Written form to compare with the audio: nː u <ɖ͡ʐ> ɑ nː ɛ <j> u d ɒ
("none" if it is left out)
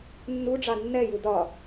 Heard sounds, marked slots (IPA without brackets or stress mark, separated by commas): ɖ͡ʐ, j